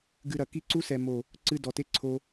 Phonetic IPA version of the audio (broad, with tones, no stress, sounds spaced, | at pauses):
ɡ ɨ˧ ɾ ɐ˨ k i˦ ǀ u˦ s ɛ˨ m o˨ | ǀ ɨ˧ d ɔ˨ t e˦ ǀʰ o˧